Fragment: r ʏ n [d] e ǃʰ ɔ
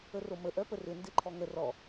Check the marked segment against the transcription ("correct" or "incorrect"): correct